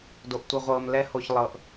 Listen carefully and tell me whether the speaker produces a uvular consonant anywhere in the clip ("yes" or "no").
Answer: yes